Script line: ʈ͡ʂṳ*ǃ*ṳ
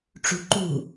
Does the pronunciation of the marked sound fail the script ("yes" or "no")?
no